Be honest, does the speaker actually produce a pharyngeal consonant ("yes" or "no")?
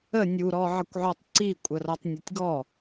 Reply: yes